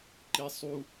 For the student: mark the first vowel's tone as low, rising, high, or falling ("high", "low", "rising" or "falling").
high